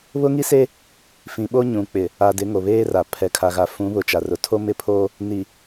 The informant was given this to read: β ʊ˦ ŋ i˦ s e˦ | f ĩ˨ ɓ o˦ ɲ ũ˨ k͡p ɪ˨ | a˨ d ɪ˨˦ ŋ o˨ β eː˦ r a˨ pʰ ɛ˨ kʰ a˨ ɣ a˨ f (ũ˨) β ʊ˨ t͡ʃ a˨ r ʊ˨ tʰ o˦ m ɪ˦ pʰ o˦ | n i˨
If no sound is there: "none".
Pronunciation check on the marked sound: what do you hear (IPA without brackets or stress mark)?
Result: ũ˨˦